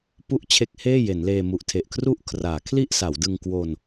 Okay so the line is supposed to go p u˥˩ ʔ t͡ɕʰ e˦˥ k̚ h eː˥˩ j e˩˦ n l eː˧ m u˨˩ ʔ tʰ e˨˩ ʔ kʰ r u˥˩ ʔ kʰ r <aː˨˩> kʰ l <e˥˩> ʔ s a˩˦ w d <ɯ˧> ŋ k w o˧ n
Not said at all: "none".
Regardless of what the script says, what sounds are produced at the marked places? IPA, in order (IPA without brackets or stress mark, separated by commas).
aː˩˦, i˥˩, ɯ˧